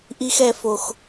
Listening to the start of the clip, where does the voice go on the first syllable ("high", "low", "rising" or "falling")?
high